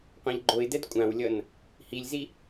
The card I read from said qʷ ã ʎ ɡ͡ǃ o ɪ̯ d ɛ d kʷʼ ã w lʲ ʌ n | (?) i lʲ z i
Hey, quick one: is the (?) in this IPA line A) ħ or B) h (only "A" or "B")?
B